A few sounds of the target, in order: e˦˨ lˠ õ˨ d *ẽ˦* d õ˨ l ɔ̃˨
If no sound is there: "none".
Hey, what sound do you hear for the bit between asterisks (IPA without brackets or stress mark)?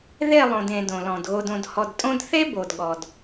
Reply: ẽ˨